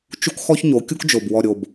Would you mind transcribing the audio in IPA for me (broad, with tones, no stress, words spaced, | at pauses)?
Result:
t͡ʃu˦kxɔ˦ç ɲo˨˦kʲu˦kd͡ʒo˨b wɔ˨ɾʲo˨b